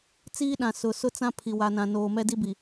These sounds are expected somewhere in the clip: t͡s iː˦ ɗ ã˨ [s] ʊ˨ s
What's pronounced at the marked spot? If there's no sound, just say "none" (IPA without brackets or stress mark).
s